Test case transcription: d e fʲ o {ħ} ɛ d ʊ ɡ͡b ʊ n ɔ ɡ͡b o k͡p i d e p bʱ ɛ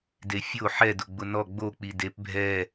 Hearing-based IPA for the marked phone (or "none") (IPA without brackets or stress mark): ħ